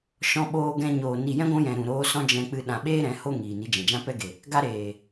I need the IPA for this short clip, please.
ʃ ɔ̃˧ ɓ oː˧ ɡ ɛ̃˧ ɲ oː˨ n i˨ j ɛ̃˦ ɡʷ ũ˧ j ɛ̃˨ ɾ ũ˨ ɾ oː˧ s ɔ̃˦ d͡ʒ ɛ̃˧ k͡p ɨ˧ ɗ ã˨ ɓ eː˦ ɾ ɛ̃˨˦ h o˦ ŋ iː˨ n i˧ d͡ʒ ɛ̃˨ d͡ʒ ã˦ p ɛ˦ ɡ e˨ | ɡ a˦ ɾ eː˨

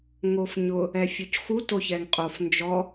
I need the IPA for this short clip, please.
ŋ o f ɲ ʊ | ɛ fʲ o c x u t o ç ɛ ŋ qʼ o f n d͡ʒ ɔ

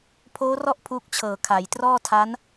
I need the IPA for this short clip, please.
pʰ oː˦˥ r ɔ˥˩ ʔ pʰ uː˦˥ k̚ t͡ɕʰ ɤː˨˩ kʰ a˩˦ j t r ɔː˥˩ tʰ a˦˥ n

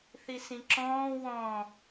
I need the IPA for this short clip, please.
θ i s ĩ ǁ ɔ̃ː w ɔ̃

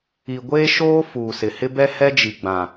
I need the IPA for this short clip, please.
i˨ ɡʷ eː˦ ʃ oː˦ f uː˨ s ɪ˨ h ɪ˦ b ɛ˦ h ɛ˦ d͡ʒ i˨ ɡ͡b ã˨

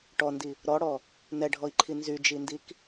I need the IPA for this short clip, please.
ʈ ɔ n d i | ɾ ɔ ɽ ɔ | n ɛ ɖʱ ɔ i̯ ǃʰ i n z y d͡ʒ i n d i k

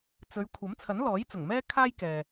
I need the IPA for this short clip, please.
t͡s ɵ˨˧ ɥ kʷʰ ɐ˨˥ m t͡sʰ ɐ˨˥ n l ɔː˨˥ j t͡s ʊ˨˩ ŋ m ɛː˥ kʰ aː˥ j k ɛː˨

